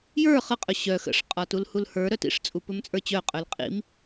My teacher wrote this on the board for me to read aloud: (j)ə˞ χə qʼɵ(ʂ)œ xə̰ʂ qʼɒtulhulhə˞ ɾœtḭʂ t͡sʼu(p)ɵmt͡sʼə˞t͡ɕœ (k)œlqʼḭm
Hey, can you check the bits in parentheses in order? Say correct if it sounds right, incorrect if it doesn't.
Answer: correct, incorrect: ɕ, correct, incorrect: qʼ

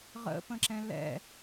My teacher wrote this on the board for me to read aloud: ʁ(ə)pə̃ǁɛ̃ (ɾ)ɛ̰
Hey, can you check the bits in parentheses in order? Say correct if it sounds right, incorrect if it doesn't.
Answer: incorrect: ə̰, incorrect: l

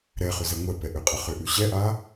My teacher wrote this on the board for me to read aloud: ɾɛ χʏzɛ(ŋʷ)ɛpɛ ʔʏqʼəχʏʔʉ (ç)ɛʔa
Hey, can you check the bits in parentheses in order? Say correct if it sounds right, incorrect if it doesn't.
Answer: correct, incorrect: ɕ

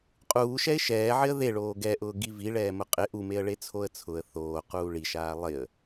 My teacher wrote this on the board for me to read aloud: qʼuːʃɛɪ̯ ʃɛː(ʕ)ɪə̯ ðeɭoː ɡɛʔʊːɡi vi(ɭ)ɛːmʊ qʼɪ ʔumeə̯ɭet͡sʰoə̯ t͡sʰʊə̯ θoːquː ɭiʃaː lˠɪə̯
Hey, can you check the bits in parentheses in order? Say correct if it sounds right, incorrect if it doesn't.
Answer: correct, correct

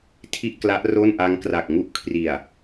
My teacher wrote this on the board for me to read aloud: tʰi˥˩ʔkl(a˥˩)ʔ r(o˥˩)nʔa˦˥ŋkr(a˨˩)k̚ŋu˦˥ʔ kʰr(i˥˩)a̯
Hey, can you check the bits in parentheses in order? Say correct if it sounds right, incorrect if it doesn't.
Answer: incorrect: a˦˥, correct, correct, incorrect: i˨˩

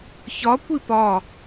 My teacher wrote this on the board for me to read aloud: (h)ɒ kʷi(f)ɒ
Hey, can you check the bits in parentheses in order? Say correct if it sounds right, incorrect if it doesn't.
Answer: incorrect: ç, incorrect: p

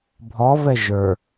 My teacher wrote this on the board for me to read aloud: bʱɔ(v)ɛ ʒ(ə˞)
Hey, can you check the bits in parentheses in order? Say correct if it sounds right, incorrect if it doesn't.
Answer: correct, correct

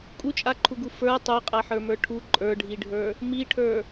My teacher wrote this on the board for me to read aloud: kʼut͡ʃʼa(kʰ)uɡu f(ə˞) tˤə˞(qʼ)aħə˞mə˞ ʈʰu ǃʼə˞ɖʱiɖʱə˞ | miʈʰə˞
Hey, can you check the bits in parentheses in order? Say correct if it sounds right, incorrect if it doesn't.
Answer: incorrect: ǃʰ, correct, correct

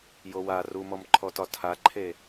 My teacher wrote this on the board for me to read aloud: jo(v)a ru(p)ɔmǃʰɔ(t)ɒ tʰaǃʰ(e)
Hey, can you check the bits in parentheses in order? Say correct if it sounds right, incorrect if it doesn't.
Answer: incorrect: w, incorrect: m, correct, correct

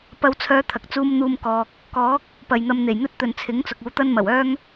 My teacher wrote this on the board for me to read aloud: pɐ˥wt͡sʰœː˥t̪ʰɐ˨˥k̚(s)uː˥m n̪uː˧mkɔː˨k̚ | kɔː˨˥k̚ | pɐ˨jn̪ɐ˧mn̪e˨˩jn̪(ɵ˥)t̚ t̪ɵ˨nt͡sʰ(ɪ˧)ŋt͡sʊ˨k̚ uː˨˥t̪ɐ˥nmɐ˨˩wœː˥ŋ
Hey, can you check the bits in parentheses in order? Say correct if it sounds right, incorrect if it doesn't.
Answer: incorrect: t͡s, correct, incorrect: ɪ˨˥

